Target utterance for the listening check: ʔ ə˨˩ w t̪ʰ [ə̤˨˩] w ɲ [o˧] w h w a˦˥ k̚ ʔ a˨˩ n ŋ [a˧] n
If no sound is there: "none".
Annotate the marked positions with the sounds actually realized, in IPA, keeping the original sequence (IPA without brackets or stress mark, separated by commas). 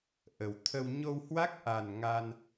ə˧, o˧, a˧